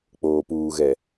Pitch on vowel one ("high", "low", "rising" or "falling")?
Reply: low